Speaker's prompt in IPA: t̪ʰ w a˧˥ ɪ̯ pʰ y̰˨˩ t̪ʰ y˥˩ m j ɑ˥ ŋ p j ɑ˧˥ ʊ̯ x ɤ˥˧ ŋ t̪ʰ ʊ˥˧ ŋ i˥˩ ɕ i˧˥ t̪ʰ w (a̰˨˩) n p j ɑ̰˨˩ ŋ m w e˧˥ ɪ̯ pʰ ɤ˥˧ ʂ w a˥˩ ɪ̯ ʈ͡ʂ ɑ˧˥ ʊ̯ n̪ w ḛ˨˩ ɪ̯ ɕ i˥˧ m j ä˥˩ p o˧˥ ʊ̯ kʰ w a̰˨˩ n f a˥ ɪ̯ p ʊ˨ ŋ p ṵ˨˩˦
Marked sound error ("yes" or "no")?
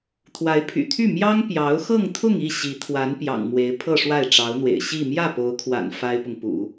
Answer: yes